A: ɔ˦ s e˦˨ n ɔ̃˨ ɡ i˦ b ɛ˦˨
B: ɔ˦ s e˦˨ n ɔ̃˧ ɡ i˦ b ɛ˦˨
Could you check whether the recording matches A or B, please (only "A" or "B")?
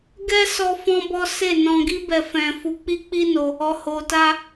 B